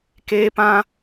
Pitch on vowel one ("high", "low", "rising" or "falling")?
high